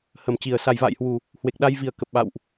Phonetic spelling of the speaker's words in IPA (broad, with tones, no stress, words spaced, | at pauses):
hə˨˩mt͡ɕi˨˩ə̯ sa˨˩jva̰ː˧˨jhwu˨˩ | hwe˨˩k̚ɗa˧jvi˨˩ə̯kə˨˩p̚ ɓa̰˧˨wʔ